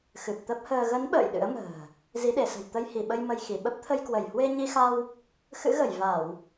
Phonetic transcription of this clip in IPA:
x ɨ˨˩ p̚ t̪ ə˦˥ p̚ h əː˧ ɣ ə˨˦ n ɓ ə̰ː˧˨ j ɗ ɨ̰˧˥ ə̯ m ə̤ː˨˩ | z i˨˦ ɗ e˧˩ s ə̤˨˩ j t̪ ə˧ j h i˧˩ ɓ ə˧ j m ə˧ j x i˧˩ ɓ ə˦˥ p̚ t̪ʰ ə˧ j k w ə˧˩ j h w e˧ ɲ i˧ x a˧ w | x ɨ̰˧˥ ɣ ə˧˩ j v a˧˩˨ w

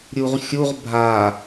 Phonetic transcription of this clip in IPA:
ɾʲ u ʁ xʲ u ʁ bʱ a

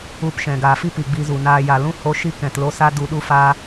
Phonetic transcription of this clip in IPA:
u˧ p ʃ ɛ̃˨ ɡ aː˨ f i˦ p i˨ ɡ͡b i˧ z u˨ n aː˧ j a˨ l ũ˦ h o˦ ʃ i˦ k ɛ̃˨ t l o˧ s a˦ d u˧ ɗ u˦ f aː˧

